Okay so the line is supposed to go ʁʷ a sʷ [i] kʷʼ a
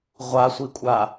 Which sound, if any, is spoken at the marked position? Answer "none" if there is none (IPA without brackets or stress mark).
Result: i